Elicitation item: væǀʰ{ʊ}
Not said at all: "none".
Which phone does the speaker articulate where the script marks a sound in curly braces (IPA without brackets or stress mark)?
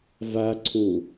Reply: u